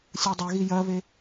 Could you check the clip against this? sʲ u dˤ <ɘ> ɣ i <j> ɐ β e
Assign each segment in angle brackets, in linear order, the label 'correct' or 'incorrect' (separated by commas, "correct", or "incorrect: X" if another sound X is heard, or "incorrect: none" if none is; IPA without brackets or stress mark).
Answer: correct, correct